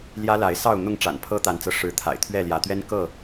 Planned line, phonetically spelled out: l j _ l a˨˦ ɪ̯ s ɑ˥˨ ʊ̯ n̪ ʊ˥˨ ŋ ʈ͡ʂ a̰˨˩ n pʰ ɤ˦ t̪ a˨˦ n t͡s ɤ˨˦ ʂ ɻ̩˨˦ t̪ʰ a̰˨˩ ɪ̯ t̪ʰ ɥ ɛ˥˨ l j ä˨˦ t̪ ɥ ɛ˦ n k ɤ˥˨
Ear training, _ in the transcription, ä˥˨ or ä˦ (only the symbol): ä˦